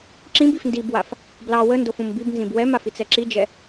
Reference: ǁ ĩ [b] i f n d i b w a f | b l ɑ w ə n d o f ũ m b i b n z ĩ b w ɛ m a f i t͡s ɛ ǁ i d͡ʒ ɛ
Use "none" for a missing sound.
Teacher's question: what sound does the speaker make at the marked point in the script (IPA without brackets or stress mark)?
b